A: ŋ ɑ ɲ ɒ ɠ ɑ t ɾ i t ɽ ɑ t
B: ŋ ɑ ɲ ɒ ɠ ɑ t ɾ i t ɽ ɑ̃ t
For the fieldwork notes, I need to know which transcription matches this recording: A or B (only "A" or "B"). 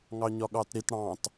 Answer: B